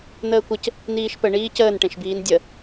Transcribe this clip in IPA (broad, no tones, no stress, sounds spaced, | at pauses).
n̪ əː kʷ ə c | n iː ʃ p ə ɳ iː c əː n ʈ ẽ ʃ b iː n dʲ ə